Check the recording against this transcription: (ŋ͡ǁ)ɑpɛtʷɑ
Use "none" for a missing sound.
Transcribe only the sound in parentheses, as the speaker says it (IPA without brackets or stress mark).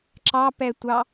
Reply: ǁ